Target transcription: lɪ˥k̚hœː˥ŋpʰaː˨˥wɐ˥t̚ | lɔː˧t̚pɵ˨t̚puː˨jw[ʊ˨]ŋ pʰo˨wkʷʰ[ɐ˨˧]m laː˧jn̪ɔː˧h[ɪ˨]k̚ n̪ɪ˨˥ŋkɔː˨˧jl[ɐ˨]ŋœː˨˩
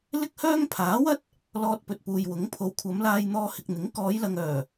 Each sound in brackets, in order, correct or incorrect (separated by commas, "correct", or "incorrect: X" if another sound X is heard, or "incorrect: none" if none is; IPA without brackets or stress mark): incorrect: ʊ˨˥, correct, correct, correct